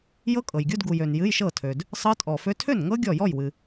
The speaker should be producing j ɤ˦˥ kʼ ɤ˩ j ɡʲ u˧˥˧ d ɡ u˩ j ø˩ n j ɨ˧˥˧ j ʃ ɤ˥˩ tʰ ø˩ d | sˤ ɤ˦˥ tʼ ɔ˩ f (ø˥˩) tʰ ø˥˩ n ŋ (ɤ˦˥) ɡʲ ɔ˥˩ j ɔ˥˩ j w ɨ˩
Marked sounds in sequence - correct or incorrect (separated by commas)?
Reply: incorrect, correct